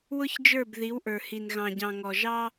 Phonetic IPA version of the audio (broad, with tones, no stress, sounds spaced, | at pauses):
w ʊ˦ ç d͡ʒ ə˞˦˨ b ð i˨˦ w ʔ ə˞˨ h i˨ n ɣ ɑ̃˨ ɟ ɑ̃˨ ŋ ɔ˨ ʒ ɑ˦